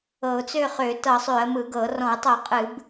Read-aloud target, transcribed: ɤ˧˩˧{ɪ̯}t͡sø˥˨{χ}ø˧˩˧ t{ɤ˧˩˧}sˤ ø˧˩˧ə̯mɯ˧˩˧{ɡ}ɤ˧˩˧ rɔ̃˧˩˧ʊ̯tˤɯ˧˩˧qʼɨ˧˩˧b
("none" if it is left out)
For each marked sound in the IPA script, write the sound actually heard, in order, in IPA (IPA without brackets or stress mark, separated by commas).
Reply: ʊ̯, χ, ɤ˧˩˧, ɡ